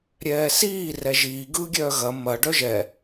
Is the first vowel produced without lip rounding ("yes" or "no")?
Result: yes